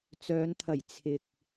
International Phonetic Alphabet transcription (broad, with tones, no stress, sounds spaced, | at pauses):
t͡s œː˨˧ n t̪ʰ ɐ˨˩ j t͡sʰ ɪ˨ k̚